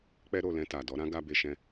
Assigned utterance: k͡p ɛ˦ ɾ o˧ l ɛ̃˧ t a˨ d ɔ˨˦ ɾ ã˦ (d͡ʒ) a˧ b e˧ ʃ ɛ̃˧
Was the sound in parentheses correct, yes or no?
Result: no